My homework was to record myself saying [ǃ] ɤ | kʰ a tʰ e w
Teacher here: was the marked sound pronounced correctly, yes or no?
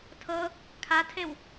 no